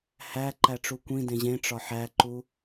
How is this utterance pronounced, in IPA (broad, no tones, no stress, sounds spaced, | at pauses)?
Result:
h æ ǃ æ ʈ͡ʂ u kʷ ĩ d ẽ ʑ ẽ ʈ͡ʂ ɒ ħ æ ǃ u